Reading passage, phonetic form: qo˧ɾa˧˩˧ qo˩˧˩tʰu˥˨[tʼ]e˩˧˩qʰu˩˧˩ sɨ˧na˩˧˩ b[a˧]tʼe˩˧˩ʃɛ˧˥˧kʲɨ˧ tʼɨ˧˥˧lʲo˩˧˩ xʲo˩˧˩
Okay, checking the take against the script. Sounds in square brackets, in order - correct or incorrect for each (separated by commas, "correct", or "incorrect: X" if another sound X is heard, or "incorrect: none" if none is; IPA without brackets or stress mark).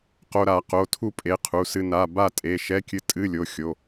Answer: incorrect: pʼ, incorrect: a˥˨